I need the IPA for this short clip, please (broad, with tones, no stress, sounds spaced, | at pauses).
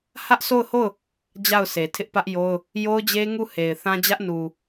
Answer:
h ä˦ ʔ s o˦˨ ʊ̯ h o˦˨ ʊ̯ | d͡ʑ a˦˨ ʊ̯ s e˨ tʰ ɪ˦ ʔ p ä˦ ʔ j o˦ ʊ̯ | j o˦ ʊ̯ d͡ʑ e˦ ŋ u˦˨ h e˨ ɪ̯ θ ã˦ d͡ʑ ä˦ ʔ n u˨